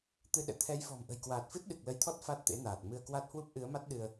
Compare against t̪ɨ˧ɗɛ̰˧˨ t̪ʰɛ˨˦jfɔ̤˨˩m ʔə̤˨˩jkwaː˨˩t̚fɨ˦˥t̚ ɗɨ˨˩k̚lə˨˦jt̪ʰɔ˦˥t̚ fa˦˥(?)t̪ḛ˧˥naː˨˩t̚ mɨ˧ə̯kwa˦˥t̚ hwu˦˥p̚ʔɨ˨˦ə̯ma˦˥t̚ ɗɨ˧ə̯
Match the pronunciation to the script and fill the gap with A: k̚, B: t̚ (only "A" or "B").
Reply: B